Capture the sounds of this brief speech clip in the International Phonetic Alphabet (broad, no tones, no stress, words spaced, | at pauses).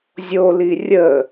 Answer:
zʲoli rʲə